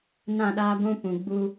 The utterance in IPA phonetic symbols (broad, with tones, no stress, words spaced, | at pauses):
nã˦˨ɗaː˦ɡʷũ˦ pũ˨ ɡ͡bu˦